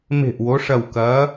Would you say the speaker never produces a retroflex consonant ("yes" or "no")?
no